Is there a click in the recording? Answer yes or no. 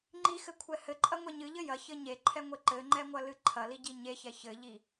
yes